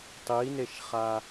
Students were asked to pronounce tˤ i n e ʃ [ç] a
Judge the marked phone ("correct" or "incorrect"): incorrect